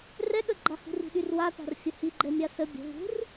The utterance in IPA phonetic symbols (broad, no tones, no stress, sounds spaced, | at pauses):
r ɛ ɠ ə ɡ͡ǃ a h ṳ r i̤ ɗ y r w a t a̤ r fʲ ə h i ɡ͡ǃ ɛ mʲ a s ə bʲ ə̤ v ṳ r